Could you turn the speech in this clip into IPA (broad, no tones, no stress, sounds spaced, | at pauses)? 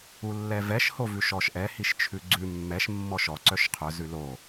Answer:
u lː ɛ v ɛ ʃ h o v ʉ ʃ ɔ ʃ ʔ ɛ h i ʃ t͡ʃʰ ʉ ɡ͡ǀ ʉ mː ɛ ʃ mː ɔ ʃ ɔ ǀ œ ʃ qʰ œ z ʉ l o